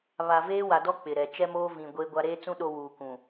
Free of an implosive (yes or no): no